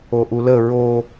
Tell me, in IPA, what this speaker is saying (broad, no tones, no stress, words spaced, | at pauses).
oʔulə ɹo